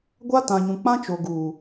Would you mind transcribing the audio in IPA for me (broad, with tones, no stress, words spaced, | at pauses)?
ɡʷa˦tã˨ɲũ˨ k͡pã˦t͡ʃo˨ ɡuː˨